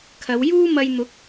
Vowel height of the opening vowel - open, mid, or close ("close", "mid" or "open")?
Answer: open